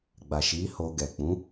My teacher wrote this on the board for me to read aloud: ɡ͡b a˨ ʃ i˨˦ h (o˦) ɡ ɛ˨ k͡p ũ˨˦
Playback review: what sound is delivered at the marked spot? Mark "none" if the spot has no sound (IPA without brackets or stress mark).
o˧